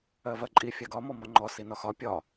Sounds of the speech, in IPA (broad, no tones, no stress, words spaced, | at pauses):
ɜvɜǃʼi fʲaɡɒ mɔmɒŋ͡ǃɔ sinɒxɒ pʲɒ